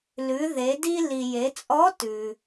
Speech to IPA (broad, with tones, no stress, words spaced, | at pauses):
lʉ˩˧ ðe˩˧di˧li˩ je˩˧t͡sʼɔ˧˥tʉ˩